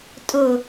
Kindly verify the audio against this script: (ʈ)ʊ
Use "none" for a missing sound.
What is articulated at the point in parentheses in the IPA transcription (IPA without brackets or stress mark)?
tʼ